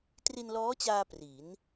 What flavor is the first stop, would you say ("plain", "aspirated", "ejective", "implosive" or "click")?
plain